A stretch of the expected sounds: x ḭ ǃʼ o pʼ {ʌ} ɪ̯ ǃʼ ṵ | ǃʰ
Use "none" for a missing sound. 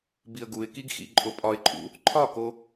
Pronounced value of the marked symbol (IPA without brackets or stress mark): ɒ